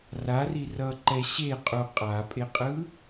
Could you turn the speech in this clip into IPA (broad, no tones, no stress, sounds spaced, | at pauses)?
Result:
r a r i r ʌ ǃ ɛ ɕ e qʼ u qʼ a pʼ e qʼ ɯ